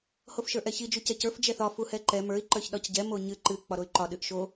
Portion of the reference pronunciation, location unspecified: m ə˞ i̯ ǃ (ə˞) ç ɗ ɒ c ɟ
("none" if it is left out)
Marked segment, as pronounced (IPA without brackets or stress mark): ə˞